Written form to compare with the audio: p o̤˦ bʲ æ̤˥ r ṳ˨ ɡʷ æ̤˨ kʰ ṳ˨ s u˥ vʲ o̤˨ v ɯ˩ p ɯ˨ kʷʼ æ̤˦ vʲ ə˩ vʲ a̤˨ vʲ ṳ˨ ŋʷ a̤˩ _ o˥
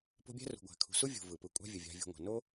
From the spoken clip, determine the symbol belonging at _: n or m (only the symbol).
n